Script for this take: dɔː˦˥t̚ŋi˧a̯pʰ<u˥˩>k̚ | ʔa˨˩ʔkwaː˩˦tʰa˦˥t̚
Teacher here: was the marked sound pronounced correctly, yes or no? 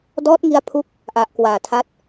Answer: no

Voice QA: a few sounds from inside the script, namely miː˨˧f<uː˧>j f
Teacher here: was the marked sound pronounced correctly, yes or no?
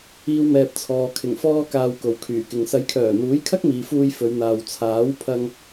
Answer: yes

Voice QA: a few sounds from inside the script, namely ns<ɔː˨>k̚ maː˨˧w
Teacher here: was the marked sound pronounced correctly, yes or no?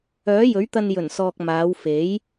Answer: yes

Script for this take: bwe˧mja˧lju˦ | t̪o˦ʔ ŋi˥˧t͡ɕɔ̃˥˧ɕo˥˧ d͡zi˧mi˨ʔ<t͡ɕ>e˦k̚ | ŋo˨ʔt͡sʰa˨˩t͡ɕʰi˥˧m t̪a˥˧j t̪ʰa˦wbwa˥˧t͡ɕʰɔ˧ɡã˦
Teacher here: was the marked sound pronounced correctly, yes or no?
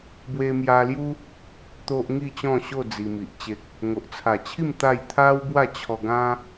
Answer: yes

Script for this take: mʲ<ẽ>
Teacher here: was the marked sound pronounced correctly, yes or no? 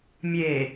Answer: no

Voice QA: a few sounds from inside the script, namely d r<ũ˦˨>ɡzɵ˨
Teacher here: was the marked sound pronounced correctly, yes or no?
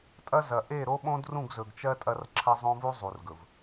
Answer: yes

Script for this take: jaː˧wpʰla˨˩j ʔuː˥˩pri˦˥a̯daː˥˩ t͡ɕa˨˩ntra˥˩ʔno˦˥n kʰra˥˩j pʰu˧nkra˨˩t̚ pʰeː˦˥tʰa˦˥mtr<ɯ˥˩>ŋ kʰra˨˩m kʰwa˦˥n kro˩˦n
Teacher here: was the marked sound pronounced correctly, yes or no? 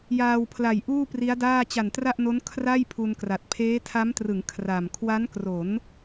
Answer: no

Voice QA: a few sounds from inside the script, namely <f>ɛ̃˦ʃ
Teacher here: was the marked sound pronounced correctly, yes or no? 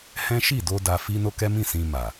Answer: no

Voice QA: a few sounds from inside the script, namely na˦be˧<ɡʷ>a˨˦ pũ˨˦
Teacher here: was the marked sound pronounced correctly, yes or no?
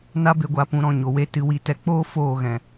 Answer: yes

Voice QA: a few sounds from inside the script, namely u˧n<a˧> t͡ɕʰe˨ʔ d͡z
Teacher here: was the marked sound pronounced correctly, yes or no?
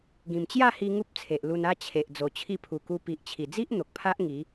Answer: no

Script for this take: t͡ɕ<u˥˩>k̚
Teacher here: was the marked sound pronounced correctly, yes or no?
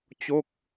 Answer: no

